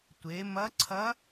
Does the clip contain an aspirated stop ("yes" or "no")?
yes